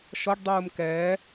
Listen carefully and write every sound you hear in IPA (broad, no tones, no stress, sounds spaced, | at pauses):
ʃ ɔ ɖ dˤ uː m k ɛː